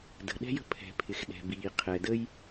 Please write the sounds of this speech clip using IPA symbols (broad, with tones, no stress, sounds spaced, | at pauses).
d ə̤˩ ɗ ɛ̤˥ j ə̤˥ pʰ ɛ̤˩ pʰ ɪ˩ x ɗ ɛ̤˩ b iː˩ qʰ ɛ˩ d ə˥ j